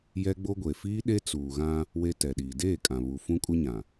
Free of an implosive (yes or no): no